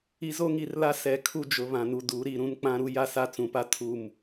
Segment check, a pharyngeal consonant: absent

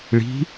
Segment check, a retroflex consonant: present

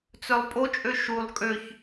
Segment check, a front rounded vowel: present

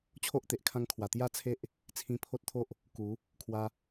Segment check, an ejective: absent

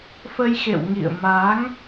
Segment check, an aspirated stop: absent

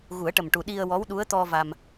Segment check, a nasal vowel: absent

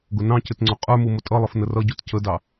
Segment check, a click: present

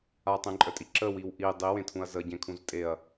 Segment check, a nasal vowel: present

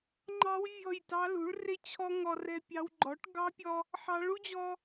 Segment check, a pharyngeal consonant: present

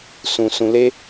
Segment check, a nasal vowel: present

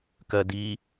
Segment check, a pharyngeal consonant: absent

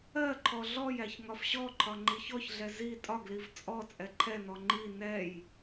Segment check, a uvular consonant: absent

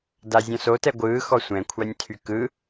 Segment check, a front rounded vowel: present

